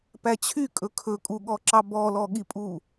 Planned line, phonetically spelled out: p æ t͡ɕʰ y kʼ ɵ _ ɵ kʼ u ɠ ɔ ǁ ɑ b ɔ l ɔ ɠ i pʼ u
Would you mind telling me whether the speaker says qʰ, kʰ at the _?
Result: kʰ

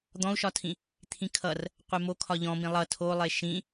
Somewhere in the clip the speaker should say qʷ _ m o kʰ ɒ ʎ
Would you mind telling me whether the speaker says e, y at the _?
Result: e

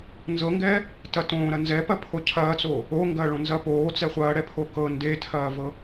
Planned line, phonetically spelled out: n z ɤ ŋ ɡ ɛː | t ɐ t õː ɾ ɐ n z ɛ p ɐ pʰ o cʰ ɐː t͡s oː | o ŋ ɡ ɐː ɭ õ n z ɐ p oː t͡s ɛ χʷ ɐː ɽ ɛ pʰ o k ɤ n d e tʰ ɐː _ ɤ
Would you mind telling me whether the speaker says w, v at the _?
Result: v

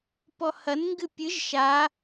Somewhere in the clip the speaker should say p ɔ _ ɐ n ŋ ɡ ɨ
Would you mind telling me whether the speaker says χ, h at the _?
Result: h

